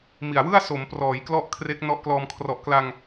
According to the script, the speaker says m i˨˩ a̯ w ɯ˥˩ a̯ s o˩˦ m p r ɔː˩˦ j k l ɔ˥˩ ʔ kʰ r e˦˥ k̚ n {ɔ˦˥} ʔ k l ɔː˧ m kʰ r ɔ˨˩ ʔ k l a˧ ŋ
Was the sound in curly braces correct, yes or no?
yes